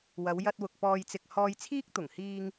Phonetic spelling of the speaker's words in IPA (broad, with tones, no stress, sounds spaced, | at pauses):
w ɐ˨˧ w j ɐ˧ t̚ w ʊ˨ k̚ p ɔː˧ j t͡s ɪ˧ k̚ h ɔː˧ j t͡sʰ iː˥ k̚ t̪ ʊ˨˩ ŋ h iː˧ ŋ